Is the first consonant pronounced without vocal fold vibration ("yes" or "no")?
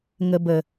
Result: no